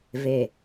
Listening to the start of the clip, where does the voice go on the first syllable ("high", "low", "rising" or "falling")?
low